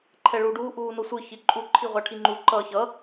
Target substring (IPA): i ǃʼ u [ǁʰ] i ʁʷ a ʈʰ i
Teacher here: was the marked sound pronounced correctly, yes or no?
no